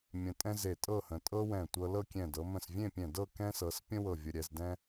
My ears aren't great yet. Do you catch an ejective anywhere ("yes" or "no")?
yes